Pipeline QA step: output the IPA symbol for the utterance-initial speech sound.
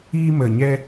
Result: iː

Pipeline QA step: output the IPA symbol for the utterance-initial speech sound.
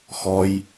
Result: x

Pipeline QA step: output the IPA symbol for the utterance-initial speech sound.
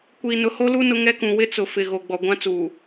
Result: kʷ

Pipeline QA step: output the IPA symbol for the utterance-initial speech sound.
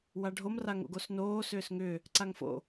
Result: w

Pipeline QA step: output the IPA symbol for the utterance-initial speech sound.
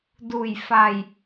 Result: d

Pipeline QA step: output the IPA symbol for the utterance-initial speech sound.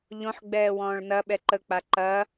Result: ʎ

